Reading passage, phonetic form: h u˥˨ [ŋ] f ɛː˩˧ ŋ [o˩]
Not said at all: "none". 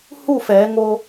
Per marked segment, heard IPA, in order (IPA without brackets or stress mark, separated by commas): none, o˧